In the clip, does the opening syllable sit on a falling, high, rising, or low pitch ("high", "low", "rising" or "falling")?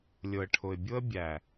low